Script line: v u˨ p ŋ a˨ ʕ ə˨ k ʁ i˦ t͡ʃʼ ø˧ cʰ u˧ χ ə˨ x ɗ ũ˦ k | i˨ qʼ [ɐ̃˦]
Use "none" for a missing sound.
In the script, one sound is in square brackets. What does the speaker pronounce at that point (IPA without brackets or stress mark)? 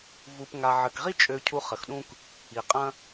ɐ̃˦